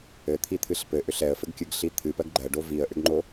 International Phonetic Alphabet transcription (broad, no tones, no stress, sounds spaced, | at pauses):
ɘ t̪ʰ i t̪ʰ ɨ ɬ p ɘ ʔ ʏ ɬ ɛ ə̯ f ɘ ɡ kʲ ɨ ɡ ɬ i t̪ʰ ɨ p ɜ ɡ ɡ͡ǃ ɜ ɖ o v i ə̯ ʔ ʏ ɡ ŋ͡ǃ o